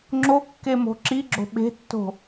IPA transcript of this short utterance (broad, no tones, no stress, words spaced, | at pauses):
ŋ͡ǁokːe mo̤ǁiɡ͡ǁo̤ ɓe̤tːo̤